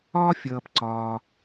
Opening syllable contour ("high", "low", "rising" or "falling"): high